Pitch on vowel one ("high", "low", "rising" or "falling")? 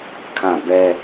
falling